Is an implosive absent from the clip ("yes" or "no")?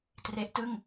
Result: yes